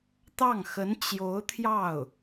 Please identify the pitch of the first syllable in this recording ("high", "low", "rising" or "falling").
falling